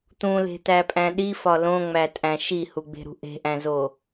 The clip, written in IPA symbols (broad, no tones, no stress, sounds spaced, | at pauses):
t̪ ũ l e̤ t̪ æ pʼ æ̃ ɗ i f ɒ l õ ŋ͡m æ tʼ æ̃ ʃ i h u ɡ͡b e̤ ɾ ṳ ʔ e̤ ʔ æ̃ z o